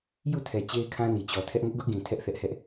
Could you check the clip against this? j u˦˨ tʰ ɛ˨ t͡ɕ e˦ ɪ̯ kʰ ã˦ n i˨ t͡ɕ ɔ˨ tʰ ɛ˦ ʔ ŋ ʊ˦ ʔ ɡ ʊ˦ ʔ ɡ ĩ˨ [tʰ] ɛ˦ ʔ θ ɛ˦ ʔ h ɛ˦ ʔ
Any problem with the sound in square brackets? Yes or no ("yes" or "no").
no